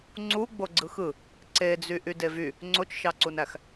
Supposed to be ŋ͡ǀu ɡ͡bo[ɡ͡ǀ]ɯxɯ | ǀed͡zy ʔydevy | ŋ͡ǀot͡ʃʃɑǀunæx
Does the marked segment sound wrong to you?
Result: no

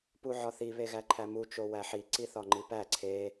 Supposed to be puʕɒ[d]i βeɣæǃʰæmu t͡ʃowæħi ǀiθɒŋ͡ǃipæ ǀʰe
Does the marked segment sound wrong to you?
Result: yes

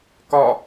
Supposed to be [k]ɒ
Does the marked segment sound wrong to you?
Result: no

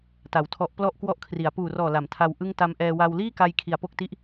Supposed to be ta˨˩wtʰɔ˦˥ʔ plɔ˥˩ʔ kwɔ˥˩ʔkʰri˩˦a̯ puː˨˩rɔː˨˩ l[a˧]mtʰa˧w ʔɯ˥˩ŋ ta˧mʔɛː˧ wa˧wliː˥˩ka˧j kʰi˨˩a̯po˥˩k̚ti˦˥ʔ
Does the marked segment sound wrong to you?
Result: yes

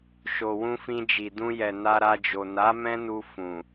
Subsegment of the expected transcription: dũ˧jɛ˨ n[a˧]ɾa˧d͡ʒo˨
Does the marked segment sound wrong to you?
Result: no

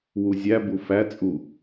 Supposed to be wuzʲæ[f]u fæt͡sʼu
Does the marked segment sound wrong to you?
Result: yes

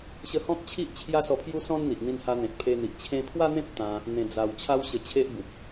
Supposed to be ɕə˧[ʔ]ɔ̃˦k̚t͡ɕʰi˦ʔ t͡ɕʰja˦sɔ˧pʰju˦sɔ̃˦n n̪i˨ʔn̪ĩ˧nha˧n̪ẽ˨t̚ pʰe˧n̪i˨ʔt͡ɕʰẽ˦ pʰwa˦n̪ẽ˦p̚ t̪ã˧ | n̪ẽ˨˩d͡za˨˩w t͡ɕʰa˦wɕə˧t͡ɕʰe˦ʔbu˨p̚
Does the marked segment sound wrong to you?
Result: yes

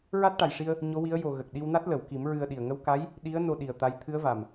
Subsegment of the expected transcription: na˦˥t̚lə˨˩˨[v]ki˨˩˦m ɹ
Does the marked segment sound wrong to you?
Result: yes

